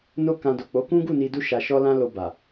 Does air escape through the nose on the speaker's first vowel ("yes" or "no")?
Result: no